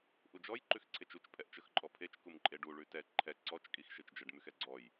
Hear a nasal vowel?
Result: no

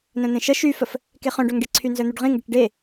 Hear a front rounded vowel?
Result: yes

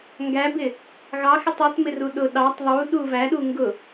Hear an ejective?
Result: no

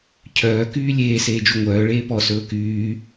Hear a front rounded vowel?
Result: yes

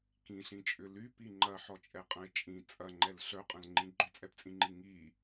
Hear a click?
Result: yes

